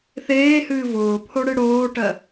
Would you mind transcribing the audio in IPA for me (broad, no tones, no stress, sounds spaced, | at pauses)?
θ eː h ɨː v ʊː pʰ o ɽ ɨ ɽ oː ʈ ɜ